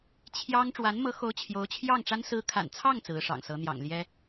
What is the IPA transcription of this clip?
t͡ɕʰ j ɑ˥ ŋ ʈ͡ʂ w a˧˥ n m ɤ˧˥ x o˧˥ ʊ̯ t͡ɕʰ j o˧˥ ʊ̯ t͡ɕʰ j ɑ˥˩ ŋ ʈ͡ʂ a˥ n s ɹ̩˧˥ kʰ a̰˨˩ n t͡sʰ ɑ˥˩ ŋ t͡s ɹ̩˧˥ ʂ ɑ̰˨˩ ŋ s ɤ˧˥ n̪ j ɑ̰˨˩ ŋ l j ɛ˥

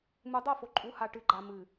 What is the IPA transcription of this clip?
m u˨ dˤ o˦˨ f o˨ ǃʼ u˨˦ h a˨ ʈ ɨ˨˦ ɡ͡ǃ a˨ m ɨ˨

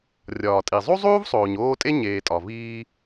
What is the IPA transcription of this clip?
rʲ ɒː˩ tʼ i˩ zˤ u˥ zˤ uː˥ v sˤ oː˩ ɲ oː˦ tʼ e˥ ɲ eː˨ tʼ ɒ˩ v iː˦

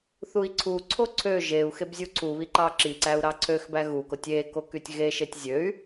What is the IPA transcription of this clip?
θ u i̯ ǀʰ u ǀʰ o ǀʰ ø ʒ e u̯ x e b zʲ u ǀʰ u β i ǃ ɑ ǁ i ǀ æ u̯ ɾ ɑ ǀʰ ø x b æ ɣ u k o tʲ e k o k y tʲ ɣ e ʃ e tʲ zʲ ø y̯

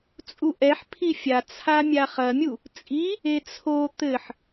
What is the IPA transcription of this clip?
t͡sʼ u ʔ ɛ ħ pʰ i fʲ a t͡sʰ a mʲ a χ ɐ mʲ u | t͡sʼ i | e t͡sʰ o t̪ ɘ ħ

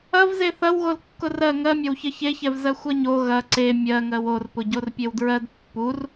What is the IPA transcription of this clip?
ɐ v z e θ ɐ w ɣ o l kː ʊ r ɜ ŋ ɜ mʲ ɐ w ç ɜ ç e ç ɛ v z ɜ xʷ ɐ ɲ o ɣ ɐ ǀ e mʲ ɜ ŋ ɜ w o r p ʊ ɟ o r pʲ e w d ɹ ɜ d pː u r

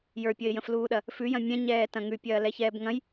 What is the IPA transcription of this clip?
j ə˞ pʲ ə ɪ̯ j ə̃ f l uː ɗ ɐ | f ʉ j ɐ̃ mʲ ɛ̃ ɲ ɛː t ɐ̃ ŋ ʉ pʲ ɐː l ɛ ç ɛː b ŋ ɐ̃ j

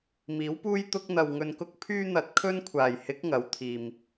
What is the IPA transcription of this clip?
m iː˨˥ w p uː˥ j t̪ ʊ˥ k̚ n̪ ɐ˨ w ŋ ɵ˧ n k ʊ˥ k̚ pʰ yː˥ n̪ ɐ˧ t̚ kʰ ɵ˥ n kʷʰ aː˨˩ j h ɪ˨˥ k̚ ŋ ɐ˨˥ w t̪ʰ iː˨ m

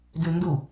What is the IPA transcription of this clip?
d ʉ n d u

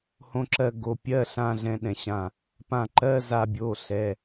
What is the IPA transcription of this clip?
h õ˧ ǁ ɜ˧ ɡ o˩˧˩ pʲ ɜ˧˥˧ ɬ ã˧˥˧ ɮ ɛ̃˧ ɗ ɛ̃˧˩ ɕ ã˧˩ | p ã˧˩ ǃ ɜ˧˥˧ z a˧ bʲ o˩˧˩ ɬ ɛ˩˧˩

